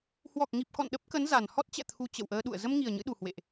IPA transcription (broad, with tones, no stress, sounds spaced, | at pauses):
h w ɔ˨˩ k̚ ŋ i˨˩ p̚ k ɔ̰˧˨ n ɗ ə˦˥ p̚ k ə˨˦ n z a˨˩ n h ɔ˦˥ t̚ t͡ɕ ɛ̰˧˨ t̪ʰ u˧ t͡ɕ ə̰˧˨ w ʔ əː˧ ɗ ṵ˧˨ ə̯ z ə˧ m ŋ i˨˩ ə̯ ɲ ɨ̰˧˥ ɗ u˨˩ h w ḛ˧˨ ʔ